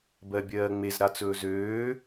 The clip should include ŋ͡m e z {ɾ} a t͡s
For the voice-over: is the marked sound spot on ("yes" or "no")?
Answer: yes